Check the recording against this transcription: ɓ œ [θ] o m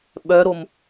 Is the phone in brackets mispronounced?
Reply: yes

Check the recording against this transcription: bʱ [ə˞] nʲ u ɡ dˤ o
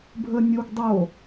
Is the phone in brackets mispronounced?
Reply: yes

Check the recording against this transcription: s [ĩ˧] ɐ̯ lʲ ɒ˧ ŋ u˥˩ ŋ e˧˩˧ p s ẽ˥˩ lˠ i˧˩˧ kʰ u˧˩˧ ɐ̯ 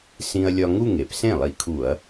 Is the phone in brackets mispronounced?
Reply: no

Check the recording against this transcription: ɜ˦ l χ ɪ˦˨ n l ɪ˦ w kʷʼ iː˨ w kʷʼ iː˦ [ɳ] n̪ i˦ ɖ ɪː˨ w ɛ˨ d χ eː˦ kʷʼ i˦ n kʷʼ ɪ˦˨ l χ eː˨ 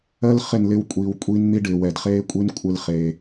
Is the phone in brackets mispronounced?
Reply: yes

